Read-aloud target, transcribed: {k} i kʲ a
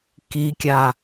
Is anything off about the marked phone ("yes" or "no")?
no